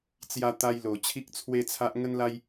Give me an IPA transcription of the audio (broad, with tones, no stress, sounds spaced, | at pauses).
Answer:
t͡s j a˧ t̪ a˧ j l o˨˩ t͡ɕʰ i˦ k̚ t͡sʰ w e˦ t͡sʰ a˦ ʔ ŋ ə˦ n l a˦ j